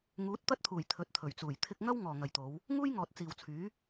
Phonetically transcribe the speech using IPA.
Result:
ŋuː˨˥t̚t̪ɐ˥t̚t̪ʰuː˨˩j t̪ʰɵ˨˥t̚t̪ʰɵ˨˩ɥt͡suː˨˩j t̪ʰɪ˧k̚ŋɐ˥w ŋɔː˨ŋɐ˨jt̪o˨˧w | ŋuː˥jŋɔː˨t̚ t͡siː˨wt͡sʰyː˨˥

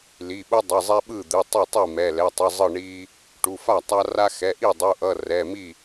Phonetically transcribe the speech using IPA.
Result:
li˩˧˩ɓu˦ dˤʌ˩˧˩zˤɛ˦ɓɯ˥˩ d̪ɯ˩˧˩tˤɯ˥˩tˤi˥˩mɛ˩˧˩ lɛ˩˧˩tˤɯ˩˧˩ zˤɯ˥˩ɳi˦ | ʈu˩˧˩fa˥˩tˤa˦ ra˦ xɛ˩˧˩ʔi˥˩dˤu˩˧˩ʔʌ˩˧˩ rɛ˩˧˩mi˥˩

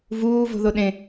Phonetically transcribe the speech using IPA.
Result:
vuːvo̤ðo ɗẽ

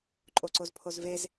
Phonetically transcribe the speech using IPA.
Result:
ǃʼoǀozpʰozvez

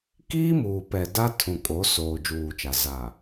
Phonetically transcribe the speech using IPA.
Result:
kiː˦muː˨pɛ˨ da˦ tʰũ˨kʼo˨˦soː˨ d͡ʒuː˨t͡ʃa˨ za˨

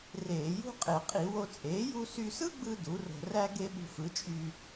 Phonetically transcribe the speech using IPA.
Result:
reː˧˩˧jṳ˥qʼe˧˩˧ qʼi˧˩˧ wo˧t͡sʼeː˩˥ ju˧sy˧sɯ˥ɡ͡bɯ˧ du˩˥ro̤˧ ræ˥ ɡe˥ɓṳ˧fɯ˩˥t͡ʃʼy˧

